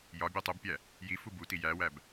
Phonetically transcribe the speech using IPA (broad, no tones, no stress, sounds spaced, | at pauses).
j ɒ bʲ o tˤ u b pʲ æ | j i f u b u t i j æ w æ b